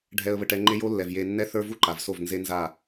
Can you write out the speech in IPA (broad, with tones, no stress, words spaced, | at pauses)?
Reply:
ɖʱɛ˧ə̯βə˧ʈɛ˧ ŋ͡ǃe˦jo˦lːɛ˨vje˧ nːɛ˦θə˞˦vu˦ ǃa˨vso˦˨v nze˦nza˦˨